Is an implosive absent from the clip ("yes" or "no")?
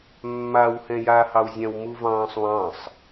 yes